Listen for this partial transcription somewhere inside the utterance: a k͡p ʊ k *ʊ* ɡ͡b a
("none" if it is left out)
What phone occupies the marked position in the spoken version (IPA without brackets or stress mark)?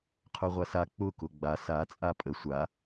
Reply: ʊ